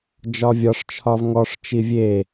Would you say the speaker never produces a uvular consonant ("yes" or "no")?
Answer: yes